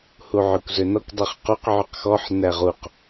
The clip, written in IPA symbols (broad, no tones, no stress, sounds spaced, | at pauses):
h u ʕ ø kʷ z ø n ɔ kʷ dˤ ʉ χ q u q ʕ y q x ɔ ħ n æ ʁ u q